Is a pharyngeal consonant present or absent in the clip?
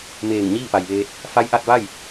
absent